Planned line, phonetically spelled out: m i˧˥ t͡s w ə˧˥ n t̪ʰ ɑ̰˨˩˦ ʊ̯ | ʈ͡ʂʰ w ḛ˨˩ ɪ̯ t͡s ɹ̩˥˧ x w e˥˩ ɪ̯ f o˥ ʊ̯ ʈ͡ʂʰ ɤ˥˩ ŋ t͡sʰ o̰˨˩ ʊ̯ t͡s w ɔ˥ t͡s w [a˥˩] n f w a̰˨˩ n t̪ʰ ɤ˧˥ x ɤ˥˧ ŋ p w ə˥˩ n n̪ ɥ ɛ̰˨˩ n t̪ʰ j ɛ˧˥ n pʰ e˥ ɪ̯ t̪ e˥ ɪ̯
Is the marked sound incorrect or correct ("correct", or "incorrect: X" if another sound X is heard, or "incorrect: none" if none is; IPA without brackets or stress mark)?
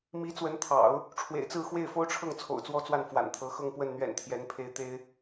correct